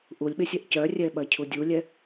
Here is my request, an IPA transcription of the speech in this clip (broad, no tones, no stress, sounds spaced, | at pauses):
ʔ u lʲ ɓ e sʲ ɛ ʔ c œ rʲ ɛ ɓ ɐ cʰ u dʲ u lʲ ɛ